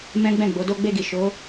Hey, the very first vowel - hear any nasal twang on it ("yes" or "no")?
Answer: yes